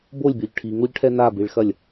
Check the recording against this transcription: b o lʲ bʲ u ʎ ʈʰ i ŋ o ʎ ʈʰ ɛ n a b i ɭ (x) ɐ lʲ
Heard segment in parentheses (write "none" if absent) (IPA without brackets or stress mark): x